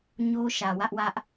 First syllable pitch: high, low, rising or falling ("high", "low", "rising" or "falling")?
high